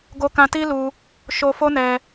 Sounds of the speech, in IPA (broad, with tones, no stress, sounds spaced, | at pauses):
ɡ o˧ k ã˧ t i˦ l u˧ | ʃ o˧ f o˦ n ɛ˧